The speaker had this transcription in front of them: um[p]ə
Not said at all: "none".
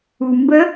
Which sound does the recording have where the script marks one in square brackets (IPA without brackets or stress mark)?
b